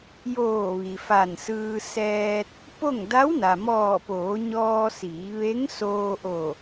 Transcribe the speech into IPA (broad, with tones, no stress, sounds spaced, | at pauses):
j oː˧˩ ʋ i˩ f a˧˩ n s ɯː˧ s ɛː˧ t̚ | p o˥˨ ŋ d a˧˥ w n a˩ m ɔː˧˩ p oː˩˧ ɲ ɔː˧ s iː˩˧ ʋ e˧˥ ŋ s oː˧ ʔ o˧˩